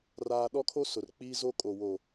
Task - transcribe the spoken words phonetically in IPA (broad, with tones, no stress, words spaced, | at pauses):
raː˦ ɗɔ˦kʰo˦sʊ˨r k͡piː˦zo˦kʼo˨ wo˨